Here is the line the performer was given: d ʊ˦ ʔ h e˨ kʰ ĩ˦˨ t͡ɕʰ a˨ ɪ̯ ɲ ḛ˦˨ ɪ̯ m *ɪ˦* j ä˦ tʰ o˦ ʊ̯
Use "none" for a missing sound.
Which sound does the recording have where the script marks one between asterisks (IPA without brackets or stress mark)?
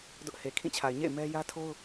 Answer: ɛ˦